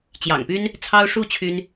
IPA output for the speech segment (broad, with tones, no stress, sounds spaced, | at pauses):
t͡ɕ j ɑ̰˨˩ ŋ p y˦ n | t͡sʰ ɑ˦ ʊ̯ ʂ u˥˨ t͡ɕʰ y˦ n